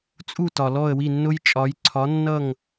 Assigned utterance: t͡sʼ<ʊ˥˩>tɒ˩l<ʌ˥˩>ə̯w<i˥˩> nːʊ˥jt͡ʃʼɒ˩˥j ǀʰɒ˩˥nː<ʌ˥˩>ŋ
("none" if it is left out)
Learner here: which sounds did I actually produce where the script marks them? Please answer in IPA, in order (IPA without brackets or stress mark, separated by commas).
u˥˩, ɔ˥˩, i˥˩, ʌ˥˩